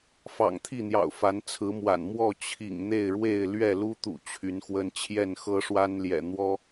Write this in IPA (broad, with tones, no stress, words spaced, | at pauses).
fɑ̰˨˩ŋt̪ʰi˥˨n̪jɑ̰˨˩ʊ̯ fa˨˦nt͡sʰɹ̩˨˦mwa̰˨˩n mwɔ˥˨ t͡ɕʰḭ˨˩ŋ n̪e˥˨ɪ̯ɻwe˥˨ɪ̯lɥɛ˥˨ lu˦t̪ṵ˨˩ t͡ɕʰy˨˦nxwə˦n t͡ɕʰjɛ˥˨nxɤ˦ʂwa˦nljɛ̰˨˩ n̪wɔ˦